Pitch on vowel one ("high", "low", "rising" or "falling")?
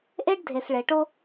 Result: high